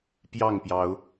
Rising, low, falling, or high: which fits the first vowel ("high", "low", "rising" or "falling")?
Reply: falling